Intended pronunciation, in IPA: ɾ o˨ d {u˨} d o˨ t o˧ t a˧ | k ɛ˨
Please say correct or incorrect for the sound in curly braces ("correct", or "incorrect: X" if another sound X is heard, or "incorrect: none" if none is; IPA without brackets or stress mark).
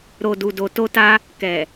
correct